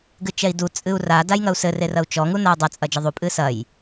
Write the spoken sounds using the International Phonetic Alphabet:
ɡ ɨ t͡ʃ ɛ i̯ d u t͡sʼ ɨ u̯ r a d a j ŋ ɐ u̯ s ɘ r e r ɐ u̯ t͡ʃ ɔ ŋ u n a u̯ dˤ ɐ t͡sʼ ɐ d͡ʒ ɛ ðˤ u pʼ ɨ s ɐ j

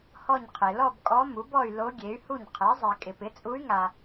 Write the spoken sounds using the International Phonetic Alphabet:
h ɔ˥˧ ɲ qʰ e˨ l ɔ˥˧ b kʼ ɔ˧˥ m u˩˥ b ɔ˥˧ y̯ l o˧˥ ɡʲ e˩˥ y̯ h u˥˩ ɲ qʰ ɛ˩˥ zˤ e˨ kʼ ɪ˨ p ɪ˩˥ t͡sʼ u˧˥ y̯ ŋ a˨

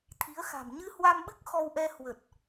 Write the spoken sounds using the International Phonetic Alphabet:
t̪ʰ i˨˦ ə̯ x a̤˨˩ m ɲ ɨ˧ h w a˧ m ɓ ɨ˦˥ k̚ x ɔ˧ w ʔ ɛ˧ h w ə˨˩ t̚

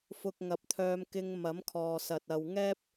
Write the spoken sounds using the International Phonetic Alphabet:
f ʊ˧ k̚ ŋ ɐ˨˥ p̚ t̪ʰ œː˧ m k ɪ˧ ŋ m ɐ˨˥ m kʰ ɔː˨ s ɐ˨ t̚ ɐ˨ w ŋ ɛː˥ p̚

